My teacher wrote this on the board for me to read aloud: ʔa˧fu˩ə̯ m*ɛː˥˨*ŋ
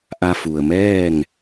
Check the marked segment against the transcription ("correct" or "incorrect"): correct